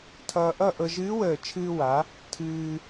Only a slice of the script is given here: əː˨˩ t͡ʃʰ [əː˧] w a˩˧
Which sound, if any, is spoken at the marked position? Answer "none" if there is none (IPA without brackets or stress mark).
ɨː˧